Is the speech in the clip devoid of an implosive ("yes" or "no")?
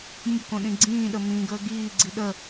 no